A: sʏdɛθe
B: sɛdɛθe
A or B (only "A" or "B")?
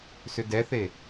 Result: A